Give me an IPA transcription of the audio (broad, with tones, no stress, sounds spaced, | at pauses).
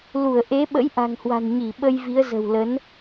l u˧˩ ə̯ ʔ e˨˦ ɓ ə̰˧˥ j ʔ a̤˨˩ ŋ h w a̤˨˩ n ɲ i˧˩ ɓ ə˧ j v i˨˦ ə̯ z ə̤˨˩ w l ə˨˦ n